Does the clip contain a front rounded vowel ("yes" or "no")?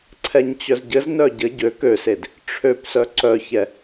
yes